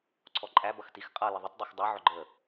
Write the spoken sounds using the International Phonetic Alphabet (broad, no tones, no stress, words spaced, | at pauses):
ǀʰɔǃʼæ bʌxtix qʼʌ ləðˤʊt dˤixdˤʌ ʕʊɡ͡ǃə